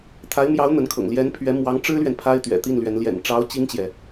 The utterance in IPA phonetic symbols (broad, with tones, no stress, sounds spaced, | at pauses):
t̪ʰ a˧˥ ɪ̯ m j ɑ˧˥ ʊ̯ n̪ ə˧˥ n kʰ ɤ̰˨˩ ŋ l j ɛ˧˥ n pʰ ɥ ɛ˧˥ m w ɑ˧˥ ŋ ʈ͡ʂ ɻ̩˥ l ɥ ɛ˨ n pʰ a˥ ɪ̯ t̪ ɥ ɛ̰˨˩ t̪ i˥˩ n l ɥ ɛ˧˥ n l j ɛ̰˨˩ n ʈ͡ʂ ɑ˧˥ ʊ̯ t͡ɕ i˥ ŋ t͡ɕ j ɛ˨